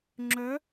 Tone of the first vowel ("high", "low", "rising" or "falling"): rising